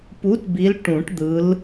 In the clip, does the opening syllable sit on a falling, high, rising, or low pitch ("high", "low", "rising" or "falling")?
rising